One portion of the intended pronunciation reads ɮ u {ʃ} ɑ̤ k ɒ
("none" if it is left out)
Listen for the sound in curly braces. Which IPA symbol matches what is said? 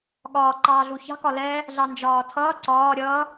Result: ç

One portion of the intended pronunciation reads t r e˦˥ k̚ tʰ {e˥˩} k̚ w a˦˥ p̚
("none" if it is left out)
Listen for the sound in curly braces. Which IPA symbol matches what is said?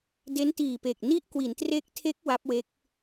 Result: e˦˥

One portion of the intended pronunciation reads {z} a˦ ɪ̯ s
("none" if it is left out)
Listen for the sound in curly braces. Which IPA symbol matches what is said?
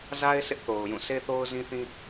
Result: z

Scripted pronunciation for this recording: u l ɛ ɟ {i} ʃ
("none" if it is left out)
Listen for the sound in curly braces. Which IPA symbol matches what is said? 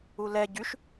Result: y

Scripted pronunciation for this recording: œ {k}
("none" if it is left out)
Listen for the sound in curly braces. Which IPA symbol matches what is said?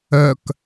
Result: k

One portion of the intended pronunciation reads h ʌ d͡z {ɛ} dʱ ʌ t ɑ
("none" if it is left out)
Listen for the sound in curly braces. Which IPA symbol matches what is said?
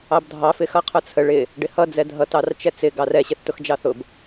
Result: ɛ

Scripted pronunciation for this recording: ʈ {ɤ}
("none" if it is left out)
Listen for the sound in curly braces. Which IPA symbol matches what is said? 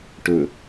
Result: ɵ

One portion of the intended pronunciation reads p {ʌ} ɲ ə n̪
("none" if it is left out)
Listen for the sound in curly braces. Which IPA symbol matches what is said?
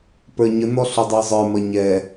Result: ə˞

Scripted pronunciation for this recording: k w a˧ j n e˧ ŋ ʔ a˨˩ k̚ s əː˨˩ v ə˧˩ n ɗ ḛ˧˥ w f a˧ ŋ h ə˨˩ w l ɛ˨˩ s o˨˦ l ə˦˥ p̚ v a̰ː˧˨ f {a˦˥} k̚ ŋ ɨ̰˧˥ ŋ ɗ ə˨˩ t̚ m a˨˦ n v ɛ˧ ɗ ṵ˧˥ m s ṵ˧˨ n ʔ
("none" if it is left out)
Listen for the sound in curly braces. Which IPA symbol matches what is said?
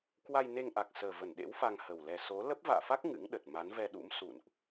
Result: a˦˥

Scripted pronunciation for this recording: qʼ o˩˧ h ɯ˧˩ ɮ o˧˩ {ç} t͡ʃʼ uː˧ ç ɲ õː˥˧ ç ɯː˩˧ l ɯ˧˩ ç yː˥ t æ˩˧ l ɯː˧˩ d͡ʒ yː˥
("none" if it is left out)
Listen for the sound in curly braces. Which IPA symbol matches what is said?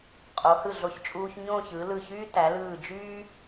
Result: ç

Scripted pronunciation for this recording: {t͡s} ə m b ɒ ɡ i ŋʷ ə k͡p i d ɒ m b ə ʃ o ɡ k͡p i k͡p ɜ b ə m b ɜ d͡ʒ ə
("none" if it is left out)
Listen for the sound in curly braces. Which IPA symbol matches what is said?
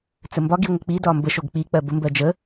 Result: t͡s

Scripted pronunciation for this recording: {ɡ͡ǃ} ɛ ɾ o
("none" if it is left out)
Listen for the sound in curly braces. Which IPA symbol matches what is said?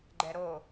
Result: ɡ͡ǃ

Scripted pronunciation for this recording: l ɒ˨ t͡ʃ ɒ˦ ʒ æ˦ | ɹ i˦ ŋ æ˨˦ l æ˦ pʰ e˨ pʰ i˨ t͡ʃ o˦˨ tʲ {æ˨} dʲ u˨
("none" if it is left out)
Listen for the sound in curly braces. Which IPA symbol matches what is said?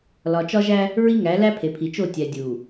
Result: æ˨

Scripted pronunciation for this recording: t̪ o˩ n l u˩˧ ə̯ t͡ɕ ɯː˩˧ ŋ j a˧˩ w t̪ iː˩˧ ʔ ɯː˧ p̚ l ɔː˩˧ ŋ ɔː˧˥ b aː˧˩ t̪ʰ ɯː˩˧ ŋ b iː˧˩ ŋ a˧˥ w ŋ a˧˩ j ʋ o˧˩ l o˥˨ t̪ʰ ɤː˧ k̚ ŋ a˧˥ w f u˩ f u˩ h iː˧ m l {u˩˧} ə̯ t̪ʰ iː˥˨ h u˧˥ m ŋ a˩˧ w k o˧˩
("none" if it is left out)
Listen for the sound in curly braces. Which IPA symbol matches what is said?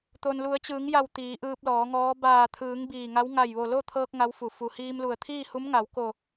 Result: u˧˩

